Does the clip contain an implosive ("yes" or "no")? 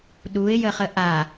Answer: yes